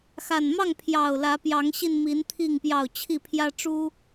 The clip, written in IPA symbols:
x a˨˩ n m ɑ˥˨ ŋ pʰ j ɑ˨˩ ʊ̯ l ä˨˦ p j ɑ˨˦ ŋ ɕ i˧ n m i˨˦ n t̪ʰ i˥˨ ŋ p j ɑ˥˨ ʊ̯ t͡ɕʰ i˥˨ pʰ j ä˦ ʈ͡ʂ u˦

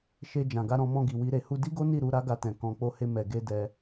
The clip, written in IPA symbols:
ʃ e˧ d͡ʒ ã˨ ɡ a˧ ɾ ɔ̃˧ m ɔ̃˧ ɡ i˨ w i˧ ɾ e˧ h u˦ d i˦ ɡ o˦ n i˦˨ ɾ u˨˦ ɾ a˦ ɡ a˧ t ɛ̃˨ k ɔ̃˧ k͡p o˦ h e˦ m ɛ˧ ɡ e˦ d ɛ˦

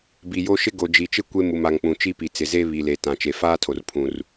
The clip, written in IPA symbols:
b i˨ j o˦ ʃ ɪ˦ ɡ o˨ d͡ʒ i˨ t͡ʃ ɪ˦ kʷ e˦ m u˨ m a˨ ŋ k͡p ũ˨ t͡ʃ i˦ p i˨ t͡s ɪ˨ z e˦ β i˨ l e˨ t ã˨ t͡ʃ e˨ f aː˦ tʰ o˨ r pʰ ũ˨ r

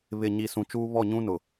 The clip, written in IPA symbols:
β ɪ˨ ɲ i˨ s ũ˨ t͡ʃ uː˦ β ɔ˦˨ ɲ ũ˦ n ʊ˨

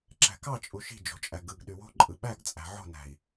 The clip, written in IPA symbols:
ǁ æ̤ k ɑ t͡ʃʼ u ʃ i̤ d͡ʒ o̤ t͡ʃʼ æ ɡ ɯ ɡ ɗ y w o̤ ǃʼ ɯ ɓ æ ɡ t͡sʼ æ̤ ʕ o̤ n æ̤ i̯

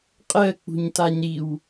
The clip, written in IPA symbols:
qʼ ɜ k͡p ṳ ɲ t a ɲ ɾ i w

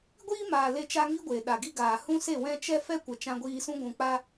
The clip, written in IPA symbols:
ɡʷ iː˦ m aː˨ l e˦ t͡ʃ a˦ ŋ i˦ ɡʷ e˨ ɗ a˨ ɡ i˧ ɡ aː˨ h ũ˦ s e˦˨ w ɛ̃˦ t͡ʃ ɛ˦ f ɛ˦ kʷ ə˨ t͡ʃ ã˧ ɡʷ iː˧ s ũ˦ ɡʷ ũ˨ k͡p a˧

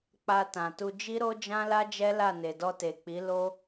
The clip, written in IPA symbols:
k͡p a˧ t ã˨ t u˧ d͡ʒ i˦ ɾ o˦ d͡ʒ ã˦ l a˦ d͡ʒ ɛ˦ l a˦˨ n e˨ d ɔ˧ t e˨ k͡p i˨˦ l o˦

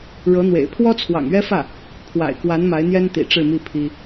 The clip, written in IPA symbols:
ɻ ɤ˧˥ n̪ w ḛ˨˩ ɪ̯ pʰ w ɔ˥ t͡sʰ w ɑ̰˨˩ ŋ ɥ ɛ˥ f ä˥˩ | pʰ w a̰˨˩ ɪ̯ k w a˧˥ n m a˧˥ ɪ̯ n̪ j ɛ˥ n t̪ ḭ˨˩ ʈ͡ʂ ɻ̩˥˧ m i˥˩ pʰ i˥

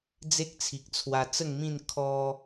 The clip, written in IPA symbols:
d͡z e˦ k̚ t͡sʰ i˨ k̚ t͡sʰ w a˧ t͡s ə˥˧ ŋ m ĩ˥˧ n kʰ ɔ˧

